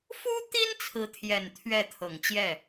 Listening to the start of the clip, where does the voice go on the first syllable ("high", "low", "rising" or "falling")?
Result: high